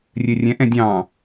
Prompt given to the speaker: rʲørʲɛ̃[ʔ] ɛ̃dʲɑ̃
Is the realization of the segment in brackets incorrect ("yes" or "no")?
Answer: no